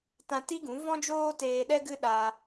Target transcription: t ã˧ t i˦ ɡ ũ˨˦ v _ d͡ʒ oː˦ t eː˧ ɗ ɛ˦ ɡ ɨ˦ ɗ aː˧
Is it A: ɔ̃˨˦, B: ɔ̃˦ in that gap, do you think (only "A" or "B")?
B